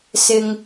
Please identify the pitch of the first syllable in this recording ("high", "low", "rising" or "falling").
low